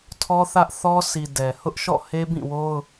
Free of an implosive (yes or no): yes